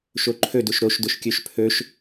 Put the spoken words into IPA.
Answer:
ʃ o ǃʰ ɵ d ʊ ʃ ɾ o ʃ d ʊ ʃ kʲ ɵ ʃ pʰ ɵ ʃ

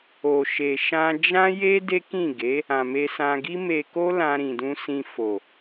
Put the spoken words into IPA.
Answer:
o˨ ʃ e˨ ʃ ã˧ d͡ʒ ã˦ j e˦ d e˦ k ĩ˦˨ ɡ e˨˦ | ã˨ m e˧ s ã˧ ɡ i˦ m e˧ k o˦ l ã˧ ɾ ĩ˨ d ũ˧ s ĩ˧ f o˨

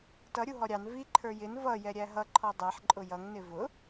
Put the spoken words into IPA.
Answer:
t ʌ ɾʲ u ɦ ɔ ɾʲ ɑ n v i ǃʰ ə˞ j ɪ n v ʌ j ɛ ɾʲ æ ɦ ʌ ǃʰ ɔ dˤ æ ħ ǃʼ ʊ j ʌ ŋ n ɪ v ʊ

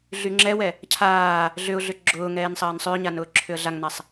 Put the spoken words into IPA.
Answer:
ɮ y ŋ͡ǁ ɛ w ɛ | cʰ aː | ɮ ʏ ʊ̯ ɮ ʏ ɡ͡ǁ ʊː ŋ ɛː n sˤ ɐː n sˤ ʏː ɲ a n ʊː ǁʰ ʏ ə̯ ɮ a ŋ n a sˤ

